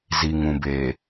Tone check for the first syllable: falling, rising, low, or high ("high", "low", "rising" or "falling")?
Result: low